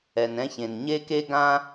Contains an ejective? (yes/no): no